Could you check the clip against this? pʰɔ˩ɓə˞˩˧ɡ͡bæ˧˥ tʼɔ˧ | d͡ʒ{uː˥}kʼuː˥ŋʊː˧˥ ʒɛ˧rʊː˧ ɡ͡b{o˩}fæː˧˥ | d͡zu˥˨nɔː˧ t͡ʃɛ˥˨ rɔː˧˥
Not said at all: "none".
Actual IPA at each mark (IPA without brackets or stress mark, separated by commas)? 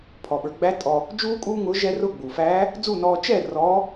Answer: uː˥, u˩